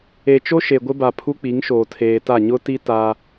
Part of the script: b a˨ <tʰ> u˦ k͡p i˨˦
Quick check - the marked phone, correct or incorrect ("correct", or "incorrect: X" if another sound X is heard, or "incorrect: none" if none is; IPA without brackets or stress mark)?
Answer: incorrect: pʰ